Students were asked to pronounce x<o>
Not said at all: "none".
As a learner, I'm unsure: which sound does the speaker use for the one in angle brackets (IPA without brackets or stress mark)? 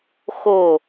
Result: o